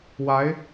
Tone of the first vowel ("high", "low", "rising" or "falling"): rising